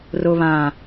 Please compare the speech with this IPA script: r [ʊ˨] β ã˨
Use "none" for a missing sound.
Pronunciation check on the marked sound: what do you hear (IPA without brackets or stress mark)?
ʊ˨